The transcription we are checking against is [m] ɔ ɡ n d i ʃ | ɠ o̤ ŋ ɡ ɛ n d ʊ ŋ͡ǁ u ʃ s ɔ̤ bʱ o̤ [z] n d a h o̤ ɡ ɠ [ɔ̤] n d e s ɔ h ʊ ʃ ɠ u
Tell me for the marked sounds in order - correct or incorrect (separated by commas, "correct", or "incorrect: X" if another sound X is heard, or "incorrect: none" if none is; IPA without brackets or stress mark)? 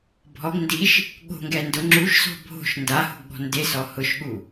incorrect: bʱ, incorrect: ʃ, correct